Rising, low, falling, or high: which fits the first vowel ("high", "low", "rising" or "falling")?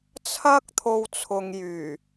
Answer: high